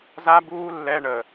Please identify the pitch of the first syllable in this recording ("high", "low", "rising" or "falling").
high